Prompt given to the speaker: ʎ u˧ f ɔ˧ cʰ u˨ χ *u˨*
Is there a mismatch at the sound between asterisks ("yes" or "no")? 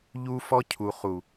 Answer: no